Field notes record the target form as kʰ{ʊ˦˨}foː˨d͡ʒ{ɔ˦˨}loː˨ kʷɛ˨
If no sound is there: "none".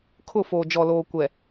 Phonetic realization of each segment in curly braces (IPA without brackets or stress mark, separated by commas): ʊ˦˨, ɔ˨